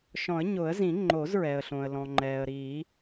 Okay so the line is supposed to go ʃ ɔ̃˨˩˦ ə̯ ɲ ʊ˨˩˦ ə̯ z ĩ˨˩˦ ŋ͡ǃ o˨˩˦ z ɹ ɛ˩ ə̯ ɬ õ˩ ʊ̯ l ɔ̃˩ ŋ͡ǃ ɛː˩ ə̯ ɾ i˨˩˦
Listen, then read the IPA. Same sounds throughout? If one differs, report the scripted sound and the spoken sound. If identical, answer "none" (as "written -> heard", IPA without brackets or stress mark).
ʊ̯ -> ə̯